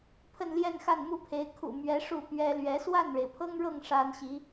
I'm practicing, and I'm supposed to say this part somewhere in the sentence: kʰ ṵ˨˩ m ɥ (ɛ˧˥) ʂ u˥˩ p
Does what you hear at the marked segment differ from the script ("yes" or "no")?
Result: no